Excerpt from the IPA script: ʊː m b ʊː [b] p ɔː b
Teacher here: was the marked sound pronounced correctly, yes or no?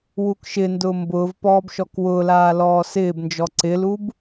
no